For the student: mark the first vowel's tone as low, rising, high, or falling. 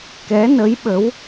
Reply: rising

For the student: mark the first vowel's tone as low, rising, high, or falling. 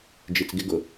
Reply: low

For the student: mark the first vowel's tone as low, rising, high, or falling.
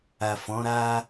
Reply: low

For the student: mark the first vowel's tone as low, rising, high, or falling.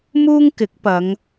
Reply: high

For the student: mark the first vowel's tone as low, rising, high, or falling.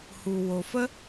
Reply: low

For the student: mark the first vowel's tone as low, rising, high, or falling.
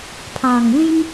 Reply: low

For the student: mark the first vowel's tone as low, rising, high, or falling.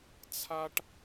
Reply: high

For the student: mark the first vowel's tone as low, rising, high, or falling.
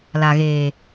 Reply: low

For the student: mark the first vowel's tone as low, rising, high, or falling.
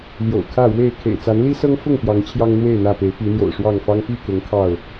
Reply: low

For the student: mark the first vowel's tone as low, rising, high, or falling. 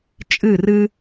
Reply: falling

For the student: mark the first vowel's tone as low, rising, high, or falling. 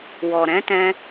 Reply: low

